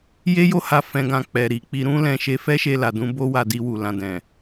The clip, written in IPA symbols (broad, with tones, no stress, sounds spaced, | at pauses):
j e˦ j o˦ h a˧ f ɛ̃˨ ɡ ã˨ k͡p ɛ˨ ɾ i˨ k͡p i˧ ɾ ũ˦ l ɛ̃˧ ʃ e˧ f ɛ˦ ʃ e˧ l a˨ d ũ˧ b o˦ w a˧ d i˧ w u˨ l ã˨ d ɛ̃˨